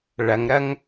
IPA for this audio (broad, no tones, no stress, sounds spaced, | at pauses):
ɭ ɐ ŋ ɾ ɐ ŋ